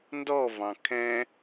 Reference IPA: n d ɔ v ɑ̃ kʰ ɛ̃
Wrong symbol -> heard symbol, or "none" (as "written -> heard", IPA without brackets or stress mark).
none